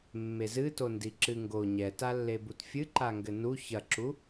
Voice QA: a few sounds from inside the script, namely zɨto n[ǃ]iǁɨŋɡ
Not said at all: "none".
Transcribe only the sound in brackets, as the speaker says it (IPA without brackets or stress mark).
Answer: d